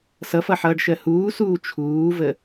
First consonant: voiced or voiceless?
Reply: voiceless